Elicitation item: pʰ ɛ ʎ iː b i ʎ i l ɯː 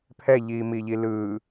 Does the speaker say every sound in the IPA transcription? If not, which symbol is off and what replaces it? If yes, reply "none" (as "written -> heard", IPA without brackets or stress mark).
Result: b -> m